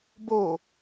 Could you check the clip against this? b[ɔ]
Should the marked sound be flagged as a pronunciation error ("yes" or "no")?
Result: yes